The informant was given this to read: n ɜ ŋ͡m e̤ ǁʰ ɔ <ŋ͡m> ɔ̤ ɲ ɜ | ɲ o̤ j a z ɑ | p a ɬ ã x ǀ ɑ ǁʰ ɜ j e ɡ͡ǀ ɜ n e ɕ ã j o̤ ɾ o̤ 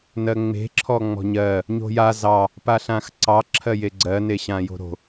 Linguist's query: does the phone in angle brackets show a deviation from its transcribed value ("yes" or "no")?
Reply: no